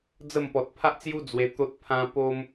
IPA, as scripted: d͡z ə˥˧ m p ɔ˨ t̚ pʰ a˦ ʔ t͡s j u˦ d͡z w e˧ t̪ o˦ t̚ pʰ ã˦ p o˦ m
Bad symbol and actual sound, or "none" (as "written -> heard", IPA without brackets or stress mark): none